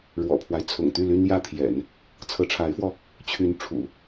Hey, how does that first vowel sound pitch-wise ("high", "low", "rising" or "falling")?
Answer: low